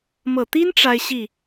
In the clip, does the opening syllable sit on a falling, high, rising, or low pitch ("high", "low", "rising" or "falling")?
low